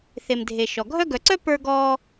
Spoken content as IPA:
θe˩mdʱe˩ ʃɔ˩ɡʱœ˦ɡœ˨ǀœ˥ pə˞˦ɡɔ˦

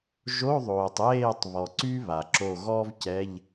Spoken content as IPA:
ʒo˧˥˧ðˤoː˩tˤ jeː˥˨tˤβɔ˩ ǀy˥βa˩ ǁo˧˩ɣɔ˥v cɛ˧˥˧ʎ

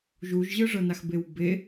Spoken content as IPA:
ʒuʒʑɯʐɤnax bewbe

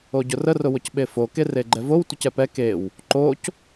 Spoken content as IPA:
oɟʊrə rʊwʊcɓefo kereɡ͡ǃɛvow tʷəcɛpɛ kew | ǃoc

